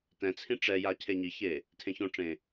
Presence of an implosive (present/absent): absent